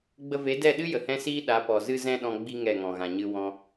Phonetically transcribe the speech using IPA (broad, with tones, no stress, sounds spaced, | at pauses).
ɡ͡b ə˧ v e˨˦ d ɛ˦˨ ɗ ɨ˦ j ə˨ h ɛ̃˦ s iː˦ ɗ a˨˦ p ɔ˨ z ɨ˧ z ɛ̃˧ ɗ ɔ̃˦ ɡ͡b i˦ ŋ ɛ˦˨ ŋ ɔ̃˨ ɣ ã˨ ɲ ɨ˦ w ɔ̃˧